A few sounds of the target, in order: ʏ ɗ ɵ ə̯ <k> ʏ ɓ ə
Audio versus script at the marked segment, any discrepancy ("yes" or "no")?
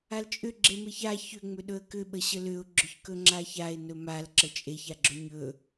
no